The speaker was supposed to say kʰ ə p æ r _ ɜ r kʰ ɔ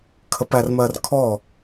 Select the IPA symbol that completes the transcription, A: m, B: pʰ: A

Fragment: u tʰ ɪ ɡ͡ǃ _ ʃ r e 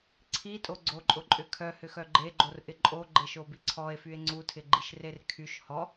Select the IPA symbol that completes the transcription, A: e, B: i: B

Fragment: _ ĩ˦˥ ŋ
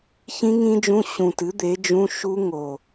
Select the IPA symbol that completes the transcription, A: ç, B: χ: A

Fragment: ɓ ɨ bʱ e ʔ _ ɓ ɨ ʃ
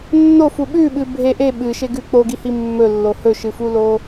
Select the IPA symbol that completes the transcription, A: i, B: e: B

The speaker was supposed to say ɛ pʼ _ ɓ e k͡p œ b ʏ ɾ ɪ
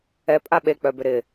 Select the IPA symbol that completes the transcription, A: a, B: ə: A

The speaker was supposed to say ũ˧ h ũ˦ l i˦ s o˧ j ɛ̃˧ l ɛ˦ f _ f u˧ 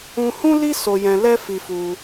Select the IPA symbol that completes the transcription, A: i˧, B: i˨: A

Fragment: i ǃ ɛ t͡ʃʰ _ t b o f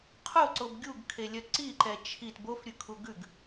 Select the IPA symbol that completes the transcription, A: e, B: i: B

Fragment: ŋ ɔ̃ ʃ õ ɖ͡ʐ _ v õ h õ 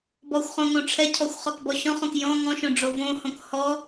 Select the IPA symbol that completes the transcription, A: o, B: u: A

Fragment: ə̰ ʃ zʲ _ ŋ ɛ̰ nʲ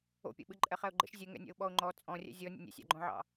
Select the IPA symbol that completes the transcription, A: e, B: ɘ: B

